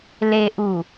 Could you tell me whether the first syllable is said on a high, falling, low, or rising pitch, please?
low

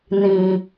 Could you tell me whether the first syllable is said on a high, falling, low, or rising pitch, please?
low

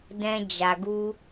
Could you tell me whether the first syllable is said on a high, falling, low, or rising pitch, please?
high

